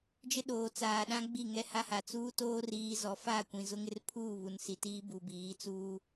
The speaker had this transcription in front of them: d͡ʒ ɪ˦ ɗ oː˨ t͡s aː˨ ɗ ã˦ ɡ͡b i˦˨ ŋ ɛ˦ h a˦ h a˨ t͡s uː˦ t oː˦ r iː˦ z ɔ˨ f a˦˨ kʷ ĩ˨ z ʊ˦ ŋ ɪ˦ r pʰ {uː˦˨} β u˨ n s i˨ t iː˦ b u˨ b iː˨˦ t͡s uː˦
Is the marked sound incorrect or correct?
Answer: correct